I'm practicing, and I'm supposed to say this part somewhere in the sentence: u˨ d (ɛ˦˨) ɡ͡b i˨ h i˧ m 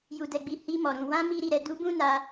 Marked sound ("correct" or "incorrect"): incorrect